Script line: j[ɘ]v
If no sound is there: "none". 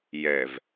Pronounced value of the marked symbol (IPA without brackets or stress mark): ɛ